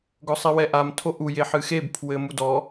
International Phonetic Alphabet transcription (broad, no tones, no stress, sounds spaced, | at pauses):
ɡ ɔ sˤ i w ɛ ʔ a m tʰ o ʔ u j e ħ ɨ x e b pʰ w ɘ m u d ɔ